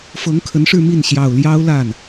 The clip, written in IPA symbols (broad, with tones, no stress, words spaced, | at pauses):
fɤ˧˥ŋkʰə˧˥nʂɻ̩˥˧ mi˥˩n ɕjɑ˨˩ʊ̯ljɑ˥ʊ̯la˥˩n